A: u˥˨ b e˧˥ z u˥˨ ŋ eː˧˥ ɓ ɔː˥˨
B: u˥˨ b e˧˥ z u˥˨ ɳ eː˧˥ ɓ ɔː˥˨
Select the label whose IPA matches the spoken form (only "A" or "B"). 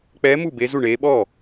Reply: B